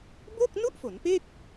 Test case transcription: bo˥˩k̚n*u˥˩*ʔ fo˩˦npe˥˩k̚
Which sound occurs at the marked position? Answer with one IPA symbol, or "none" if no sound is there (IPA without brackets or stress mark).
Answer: u˥˩